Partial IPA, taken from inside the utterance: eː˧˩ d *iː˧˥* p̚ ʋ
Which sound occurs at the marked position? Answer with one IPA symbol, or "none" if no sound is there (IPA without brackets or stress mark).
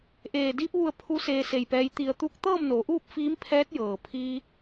iː˧